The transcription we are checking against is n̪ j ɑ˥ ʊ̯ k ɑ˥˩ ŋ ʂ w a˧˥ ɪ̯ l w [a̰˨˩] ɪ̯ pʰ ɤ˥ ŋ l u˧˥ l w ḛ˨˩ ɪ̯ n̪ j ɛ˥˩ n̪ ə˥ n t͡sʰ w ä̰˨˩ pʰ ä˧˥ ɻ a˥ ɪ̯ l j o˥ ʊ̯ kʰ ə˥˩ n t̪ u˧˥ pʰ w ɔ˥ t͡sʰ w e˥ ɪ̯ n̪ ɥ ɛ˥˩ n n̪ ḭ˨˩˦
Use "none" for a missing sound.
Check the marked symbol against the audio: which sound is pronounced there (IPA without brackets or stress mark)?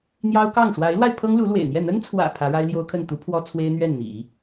a˧